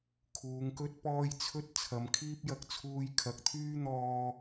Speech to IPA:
kʰ uː˨˧ ŋ k ɵ˥ t̚ p ɔː˥ j t͡sʰ ɵ˥ t̚ t͡sʰ ɐ˨˧ m kʰ iː˥ p̚ j ɐ˧ k̚ t͡sʰ uː˧ j kʰ ɐ˨ k̚ t̪ʰ yː˥ n̪ ɔː˧

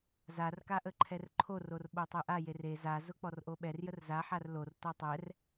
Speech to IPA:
z a r k a ʔ ə ǃʰ ɛ r ǃʰ o r o r ɓ o tˤ e ʔ a j e r e z a z ʊ k͡p ɔ r ʔ o ɓ ɛ r j ə r z a ħ a r l o r t ɔ tˤ ɛ r

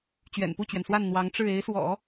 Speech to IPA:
t͡ɕ ɥ ɛ̰˨˩ n p u˥˩ t͡ɕ ɥ ɛ˩ n s w a˥˩ n n̪ w ɑ˧˥ ŋ ʈ͡ʂ ɻ̩˥˩ e˧˥ ɪ̯ s w ɔ̰˨˩˦

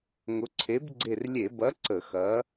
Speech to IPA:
ŋ ʊ˨˥ ǀʰ e˨˥ b ɡ͡ǀ e˧˩ r lʲ e˧˩˧ b ɐ˨˥ ǀ ə˧˩˧ x ɐ˨˥

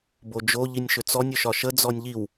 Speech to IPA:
b o d͡ʒ o ʎ i nʲ ʃ ʏ t͡s ɔ nʲ ʏ ʃ ɒ ʃ ə d͡z ɔ nʲ ʎ i w

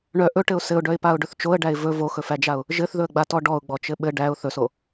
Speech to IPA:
ɳ œ ʔ ɵ ʈ ɘ ʊ̯ s ɘ ʊ̯ ɖ œ ɪ̯ p a ʊ̯ ɖ ɵ θ t͡ʃ o ə̯ ɖ æ ɪ̯ v ɵ v o x ɵ f æ d͡ʒ a ʊ̯ | ʒ ɘ θ ð ɵ ə̯ ɡ͡b a t ɔ ɖ ɔ ʊ̯ ɡ͡b ɔ t͡ʃ ɘ ɓ ɘ ɖ æ ʊ̯ θ ɵ s o

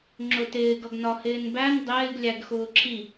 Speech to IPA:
ŋ͡ǁ ʊ t ɪː ɡ ʌ ɡ n ɒ h ɪː n b æ n dˤ ɪː ɡ lʲ æ ɡ x ʊː ǁʰ i

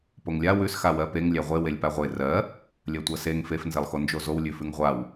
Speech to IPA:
p o ŋ lʲ a w ʉ s x a w ɜ p e ŋ lʲ æ ʁʷ e w e lʲ p a ʁʷ e r ɜ | lʲ ɜ tʷ ɜ s e ŋ f e f n z e lˠ x o n d͡ʒ o z o w lʲ ʉ f ʉ ŋ ʁʷ a w

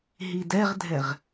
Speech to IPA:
ɦ i d ɛ ʁ dʱ ɛ ʁ

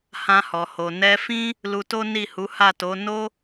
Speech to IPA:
h ã˧ h ɔ˨ h o˨ n ɛ˧ f ĩ˦ | l u˧ t o˦ n i˦˨ h u˨˦ h a˦˨ t o˨˦ n o˦

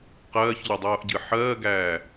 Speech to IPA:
q ɜː ç ʎ o dˤ oː ʔ ɟ ɨ ħ ɜː ɡ æː

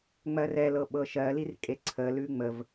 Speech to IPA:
ŋ͡m ɜ r ɛ l ɤ ɓ ɤ ʃ ɜ l i r kʼ e ǀʰ ə l ʉ ŋ͡m ə v

